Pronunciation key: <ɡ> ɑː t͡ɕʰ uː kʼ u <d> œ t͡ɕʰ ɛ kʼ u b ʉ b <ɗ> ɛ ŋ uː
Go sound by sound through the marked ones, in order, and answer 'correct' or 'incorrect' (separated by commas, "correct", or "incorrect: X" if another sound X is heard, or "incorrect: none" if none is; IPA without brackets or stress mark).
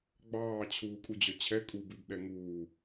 incorrect: ɡ͡b, incorrect: d͡ʑ, correct